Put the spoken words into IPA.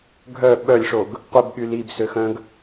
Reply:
ɡʱ œ ɓ œ lʲ ʂ o ɡ | qʷ ɛ b ɠ y l i b s ø x œ̃ ɡ

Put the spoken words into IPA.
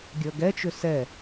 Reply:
ɡʲ ə˞ ɡ ɛ t͡ʃ ʏ s ɛ

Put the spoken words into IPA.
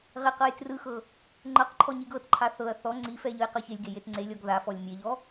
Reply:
ʁ e q ɤ j t r ɯ x ɤ | ŋ͡ǃ ɤ q ǃʰ ɔ ɲ i ɡ ɤ t ǃʰ a θ ɤ ɐ̯ θ ɔ ŋ͡ǀ i f ɛ ʎ ɯ j q ɤ ç e lʲ ɡ e j e t ŋ͡ǀ e lʲ ɔ ɡ ð a f ɔ lʲ mʲ e ʎ ɔ

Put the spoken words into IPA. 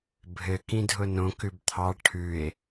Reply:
bʱ ɘ k ĩ dʱ ʊ n õ k ʉ b t̪ʰ ɑ ʈʰ ʉ e̯

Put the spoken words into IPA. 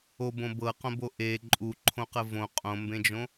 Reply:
o b õ b ɤ q õ b o ʔ e ǃʼ u ǃʰ õ q ə v õ qʼ õ m b ẽ d͡ʒ õ

